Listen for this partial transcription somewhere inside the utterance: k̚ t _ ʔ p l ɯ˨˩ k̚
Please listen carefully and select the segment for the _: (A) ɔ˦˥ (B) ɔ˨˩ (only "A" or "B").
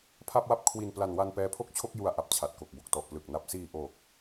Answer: B